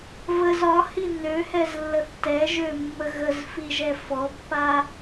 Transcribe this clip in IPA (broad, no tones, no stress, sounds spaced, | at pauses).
v ə z ɒ h i n ø h ɛ z lː ə θ t ɛ ʒ ø mː ə ɣ ə z f i ʒ ɛ f ɔ pː a